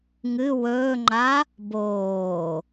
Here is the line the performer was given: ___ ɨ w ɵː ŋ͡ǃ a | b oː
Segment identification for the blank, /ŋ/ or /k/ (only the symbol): ŋ